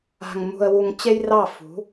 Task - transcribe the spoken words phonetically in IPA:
a̤˨ŋmṳ˨ə̯wu˨ŋ t͡ɕe˦jrɑ˦˨ fṳ˨˦

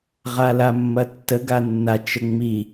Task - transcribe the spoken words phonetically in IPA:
ʁalamːɐtːə ɡanːa t͡ʃəŋ͡mi

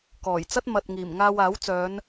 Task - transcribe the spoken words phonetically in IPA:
kɔː˨˩jt͡sɐ˥t̚ mɐ˨t̚ŋiː˨˩m ŋaː˧waː˨˥wt͡sœː˨˧n

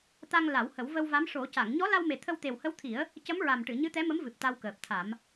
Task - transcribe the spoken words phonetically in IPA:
t̪a˧ŋ la˨˩˦whə˨˩˦w və˧wva˧˥m ʂo˨˩˦ca˨˩˨ŋ ɲɔ˧˥la˧wme˨˩ t̪ʰə˧wt̪e˨˩whə˧˥wt̪ʰi˨˩˦ə̯ | cə˧˥mɹa˨˩mʈɨ˨˩˨ ɲɨ˧˥t̪ɛ˧˥mə˧˥mvɨ˨˩p̚ t̪a˧wkəː˨˩p̚t̪ʰa˨˩˦m

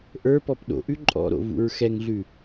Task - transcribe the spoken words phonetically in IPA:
ʔə˞pɔp ɗo̰ʔʉ ǃʼɔ̰ɾo̰ vṵɹxɛŋɮʉ

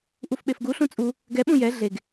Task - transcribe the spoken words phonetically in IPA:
ʔufɓefɡuɬũ t͡sʼu | ɡɛɓũ jɛ ɮeɡ

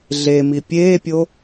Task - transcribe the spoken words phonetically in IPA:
ɮemi pʲeːpʲo

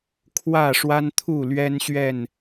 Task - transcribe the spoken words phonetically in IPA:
kʰwä˥˨ʂwa˦nt̪ʰu˥˨ lɥɛ˦nɕɥɛ˥˨n

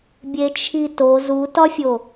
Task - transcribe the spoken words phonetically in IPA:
bʲet͡ʃʰito zutɒfʲo

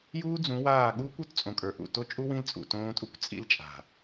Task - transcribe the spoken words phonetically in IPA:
juː˦d͡zũ˨˦waː˦˨ ɠuː˦kʷu˨˦tt͡sʼõ˨kʼə˞˨ ʔṵ˨ to˦t͡ʃʼu˦wĩ˦l t͡sʼṵ˨tõː˦tʼu˦kʷ t͡sʼḭ˦lt͡ʃʼa̤˨

